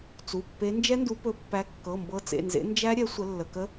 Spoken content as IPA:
t͡s u˩˧˩ pː e˨˦ n d͡ʒ ɛ˦˥ n d u˨˦ p ɵ˨˦ pː æ˨˦ kː ɤ˩˧˩ m b ɤ˨˦ t͡s ḛ˩˧˩ n z ḛ˨˦ n d͡ʒ æ˦˥ ɾʲ ɛ˨˦ sʷ ə˨˦ lː ə˩˧˩ k ə˦˥

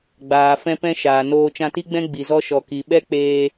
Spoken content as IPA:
ɡ͡b aː˨ f ɛ̃˧ p ɛ̃˧ ʃ aː˨ n oː˧ t͡ʃ ã˧ t i˦ ɡ͡b ɛ̃˦ ɡ͡b i˨ z ɔ˧ ʃ ɔ˨ k i˨ ɓ ɛ˦ k͡p eː˧

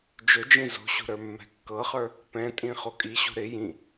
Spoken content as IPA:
d͡ʒ ɵ d͡ʒ ĩ z o̤ ɕ o̤ ɾ ə˞ mː ɛ̤ kː ɤ χ ə˞ | p ɛ̃ tʼ ĩ χ o kʼ i ɕ o̤ ɾ ɪ j ĩ

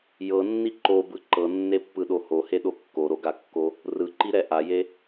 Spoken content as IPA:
j ɤ nː i ǃ o b ɯ ǃ ɤ nː e pː ɯ ɗ o h o h e ɗ o kː o ɾ o ɡ a kː o | r ɯ ǃ i ɾ ɛ ʔ a j e

